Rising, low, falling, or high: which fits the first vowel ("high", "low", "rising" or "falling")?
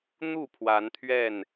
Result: falling